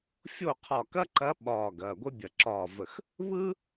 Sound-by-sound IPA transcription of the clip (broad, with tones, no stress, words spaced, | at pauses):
fʲo˥˩qʰɒ˧˩kɐ˥ǃɐ˧˥ ɓɒː˧˩ ɡɐː˩˧˩ɡʷɛ˥bʲɐ˧˩ ǁɒː˧˩və˧˩x | βɯ˥